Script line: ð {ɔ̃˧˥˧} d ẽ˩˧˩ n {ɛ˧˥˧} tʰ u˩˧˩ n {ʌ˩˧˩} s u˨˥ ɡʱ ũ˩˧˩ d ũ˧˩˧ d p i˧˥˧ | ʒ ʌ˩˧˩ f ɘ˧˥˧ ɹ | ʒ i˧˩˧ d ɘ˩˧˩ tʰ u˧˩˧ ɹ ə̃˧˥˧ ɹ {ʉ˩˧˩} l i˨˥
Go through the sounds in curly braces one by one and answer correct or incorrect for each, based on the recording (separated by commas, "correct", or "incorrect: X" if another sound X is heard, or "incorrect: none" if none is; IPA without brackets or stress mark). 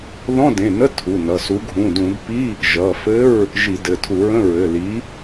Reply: correct, incorrect: ə˧˥˧, correct, incorrect: ɘ˩˧˩